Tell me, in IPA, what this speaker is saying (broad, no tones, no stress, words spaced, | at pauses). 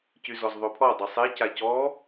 cyzɔzðˤɵpʰɔ dˤʌsˤe cacɔ